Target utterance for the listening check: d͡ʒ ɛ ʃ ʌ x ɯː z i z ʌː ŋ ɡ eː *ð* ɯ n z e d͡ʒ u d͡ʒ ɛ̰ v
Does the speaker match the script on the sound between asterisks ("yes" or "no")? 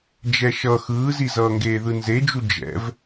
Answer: yes